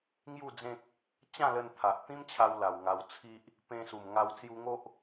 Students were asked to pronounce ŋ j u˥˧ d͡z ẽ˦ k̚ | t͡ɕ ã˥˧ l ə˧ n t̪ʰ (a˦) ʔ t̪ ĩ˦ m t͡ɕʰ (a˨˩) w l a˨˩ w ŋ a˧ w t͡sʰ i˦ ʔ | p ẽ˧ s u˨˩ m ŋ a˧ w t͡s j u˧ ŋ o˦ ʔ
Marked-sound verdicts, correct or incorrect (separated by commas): incorrect, incorrect